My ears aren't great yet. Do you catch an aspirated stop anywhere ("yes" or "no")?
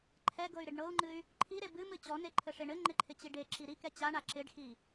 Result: yes